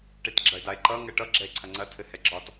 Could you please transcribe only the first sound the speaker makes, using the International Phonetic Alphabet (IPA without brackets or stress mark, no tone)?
ʈ